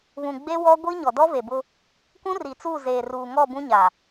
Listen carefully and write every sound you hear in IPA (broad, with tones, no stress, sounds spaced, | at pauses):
β ũ˨ ɡ͡b e˦ w ɔ˦ ɡʷ i˦ ɲ ɔ˨ d ɔ˦ v e˨ b ʊ˦ | k ũ˦ r i˨ t͡s uː˦˨ z eː˨ r uː˨ ŋ ɔ˦˨ b ũ˦ ɲ a˨